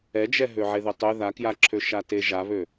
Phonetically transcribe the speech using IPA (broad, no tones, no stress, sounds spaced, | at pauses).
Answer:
ɛ d͡ʒ ɛ ɦ ø ʕ e ð ø tˤ ø ð a k j a ǁʰ ø ʃ a t e ʒ a β ø